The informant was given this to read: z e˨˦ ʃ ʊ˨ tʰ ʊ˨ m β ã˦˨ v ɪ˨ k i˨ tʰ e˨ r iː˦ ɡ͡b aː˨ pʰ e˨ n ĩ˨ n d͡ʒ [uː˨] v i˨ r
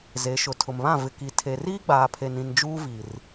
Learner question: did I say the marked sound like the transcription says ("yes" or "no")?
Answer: no